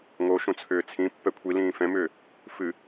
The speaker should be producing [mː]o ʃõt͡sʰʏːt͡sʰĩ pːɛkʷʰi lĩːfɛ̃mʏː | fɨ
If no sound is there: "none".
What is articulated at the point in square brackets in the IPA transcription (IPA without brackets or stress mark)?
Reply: ŋ